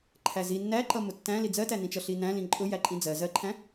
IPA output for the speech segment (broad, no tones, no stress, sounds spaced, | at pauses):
ǃʰ æ z i nː æ ǃ ʌ m ʊ tː æ̃ l i d͡z ɜ t æ n ĩ t͡ʃ ʌ ɬ i n æ̃ l ĩ ǃʼ ʊ j æ ǃʼ ĩ d͡z ɜ z ɜ ǃʰ æ̃